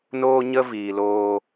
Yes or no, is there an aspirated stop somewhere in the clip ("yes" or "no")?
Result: no